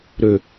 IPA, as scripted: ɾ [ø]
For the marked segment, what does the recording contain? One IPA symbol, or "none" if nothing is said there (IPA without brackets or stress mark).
ø